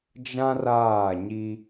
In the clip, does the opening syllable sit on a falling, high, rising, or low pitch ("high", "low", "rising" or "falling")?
high